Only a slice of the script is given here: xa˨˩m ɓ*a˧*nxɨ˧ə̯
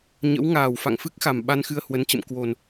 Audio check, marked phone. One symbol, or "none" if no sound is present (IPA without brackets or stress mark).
a˧